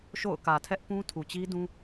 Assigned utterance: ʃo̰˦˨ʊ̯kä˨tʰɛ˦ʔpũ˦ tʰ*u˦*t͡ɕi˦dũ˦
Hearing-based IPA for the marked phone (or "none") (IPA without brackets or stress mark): u˨